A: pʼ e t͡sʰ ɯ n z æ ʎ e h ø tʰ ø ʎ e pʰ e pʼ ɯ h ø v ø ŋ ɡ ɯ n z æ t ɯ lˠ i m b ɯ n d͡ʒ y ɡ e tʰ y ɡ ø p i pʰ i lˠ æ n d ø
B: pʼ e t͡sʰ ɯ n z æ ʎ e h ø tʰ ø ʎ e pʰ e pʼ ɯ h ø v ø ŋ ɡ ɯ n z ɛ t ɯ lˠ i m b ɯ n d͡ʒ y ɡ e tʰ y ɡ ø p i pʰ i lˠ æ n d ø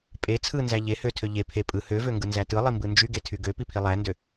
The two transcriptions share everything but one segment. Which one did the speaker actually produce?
A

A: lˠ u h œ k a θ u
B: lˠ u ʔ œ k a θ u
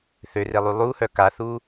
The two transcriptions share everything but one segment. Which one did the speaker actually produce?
A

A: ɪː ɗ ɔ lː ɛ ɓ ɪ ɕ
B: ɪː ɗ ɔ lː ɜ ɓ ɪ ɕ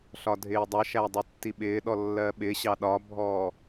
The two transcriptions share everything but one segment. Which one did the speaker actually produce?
B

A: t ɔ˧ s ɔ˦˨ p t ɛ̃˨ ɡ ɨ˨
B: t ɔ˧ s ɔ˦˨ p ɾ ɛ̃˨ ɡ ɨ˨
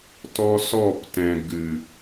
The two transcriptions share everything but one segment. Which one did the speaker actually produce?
A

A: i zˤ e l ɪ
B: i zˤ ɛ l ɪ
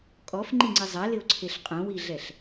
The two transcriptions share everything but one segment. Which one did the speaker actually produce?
B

